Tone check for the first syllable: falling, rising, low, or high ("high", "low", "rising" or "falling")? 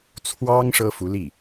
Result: high